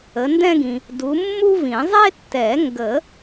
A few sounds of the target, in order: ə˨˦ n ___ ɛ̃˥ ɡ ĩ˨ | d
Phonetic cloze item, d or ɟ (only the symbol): d